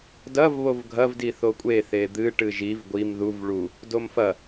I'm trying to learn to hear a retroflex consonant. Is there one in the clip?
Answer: yes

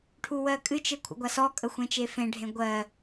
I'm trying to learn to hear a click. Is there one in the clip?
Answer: no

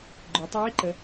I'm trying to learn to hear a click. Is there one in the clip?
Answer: yes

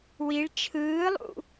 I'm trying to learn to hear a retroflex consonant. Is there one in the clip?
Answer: yes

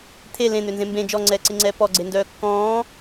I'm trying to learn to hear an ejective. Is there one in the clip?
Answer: no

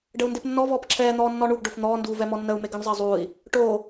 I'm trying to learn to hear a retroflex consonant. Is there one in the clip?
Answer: yes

